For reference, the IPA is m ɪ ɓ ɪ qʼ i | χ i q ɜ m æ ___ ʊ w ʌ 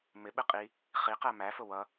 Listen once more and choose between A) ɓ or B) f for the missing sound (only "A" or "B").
B